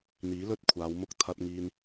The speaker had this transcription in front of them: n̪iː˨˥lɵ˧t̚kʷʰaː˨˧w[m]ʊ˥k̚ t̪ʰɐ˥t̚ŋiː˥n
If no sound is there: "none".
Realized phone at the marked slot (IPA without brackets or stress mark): m